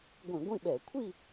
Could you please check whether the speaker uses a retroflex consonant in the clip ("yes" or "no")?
no